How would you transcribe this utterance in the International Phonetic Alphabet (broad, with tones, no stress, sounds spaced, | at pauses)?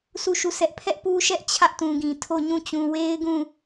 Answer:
sʰ u˦˨ ʃ u˦˨ sʰ ɛ˦ ʔ pʰ ɛ˦ ʔ p u˦ ʃ ɛ˦ ʔ t͡ɕʰ ä˦ ʔ t ũ˨ ɡ ĩ˨ tʰ o˦˨ ɲ ũ˦˨ t͡ɕ ũ˨ w e˦ ɪ̯ ɡ ũ˦˨